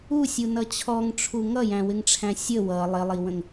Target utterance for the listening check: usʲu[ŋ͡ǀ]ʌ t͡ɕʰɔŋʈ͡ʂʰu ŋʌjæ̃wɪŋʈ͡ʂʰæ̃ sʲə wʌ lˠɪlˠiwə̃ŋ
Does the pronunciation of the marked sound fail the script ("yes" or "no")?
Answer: yes